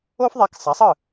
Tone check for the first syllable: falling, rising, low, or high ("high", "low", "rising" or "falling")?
high